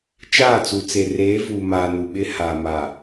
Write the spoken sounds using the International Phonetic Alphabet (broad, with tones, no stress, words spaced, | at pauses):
t͡ʃaː˦˨t͡su˨t͡se˨ reː˨˦vuː˨maː˨ nu˨ɓɪ˦haː˨ma˨